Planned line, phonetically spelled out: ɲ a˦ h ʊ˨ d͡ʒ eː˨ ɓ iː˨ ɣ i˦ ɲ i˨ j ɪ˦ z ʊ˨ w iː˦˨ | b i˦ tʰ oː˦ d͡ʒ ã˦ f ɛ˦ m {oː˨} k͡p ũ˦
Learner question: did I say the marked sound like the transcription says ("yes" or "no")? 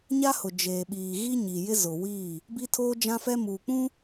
no